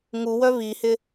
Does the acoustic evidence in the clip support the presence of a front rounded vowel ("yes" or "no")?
yes